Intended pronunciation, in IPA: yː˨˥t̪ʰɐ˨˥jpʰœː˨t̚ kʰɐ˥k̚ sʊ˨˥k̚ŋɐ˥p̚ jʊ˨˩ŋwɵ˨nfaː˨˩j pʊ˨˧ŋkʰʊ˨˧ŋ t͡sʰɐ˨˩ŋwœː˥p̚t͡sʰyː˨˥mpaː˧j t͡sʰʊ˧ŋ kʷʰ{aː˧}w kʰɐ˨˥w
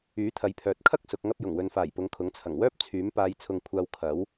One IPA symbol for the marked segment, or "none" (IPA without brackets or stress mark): aː˧